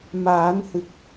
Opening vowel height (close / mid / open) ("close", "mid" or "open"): open